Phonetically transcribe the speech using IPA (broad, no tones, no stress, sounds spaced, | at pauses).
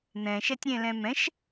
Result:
n̪ ɛ̃ ʃ ɛ tʲ ɾʲ ɛ̃ l ɛ̃ m ɛ̃ ʃ